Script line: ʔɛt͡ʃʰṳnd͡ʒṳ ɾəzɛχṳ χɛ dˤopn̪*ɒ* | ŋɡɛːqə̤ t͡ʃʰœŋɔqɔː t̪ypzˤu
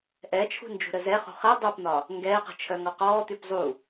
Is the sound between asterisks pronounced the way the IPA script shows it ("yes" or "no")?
yes